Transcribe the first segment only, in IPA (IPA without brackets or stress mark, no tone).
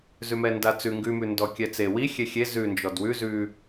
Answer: z